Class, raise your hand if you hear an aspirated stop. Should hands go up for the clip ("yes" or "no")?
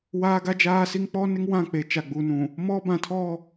yes